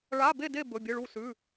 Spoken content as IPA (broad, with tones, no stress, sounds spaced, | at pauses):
ɭ a˧˥˧ b e˥˨ d e˥˨ b ɵ˧˥˧ bʲ ɨ˧˥˧ ɭ u˥˨ s ʉ˧˥˧